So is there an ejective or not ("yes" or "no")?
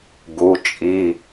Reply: yes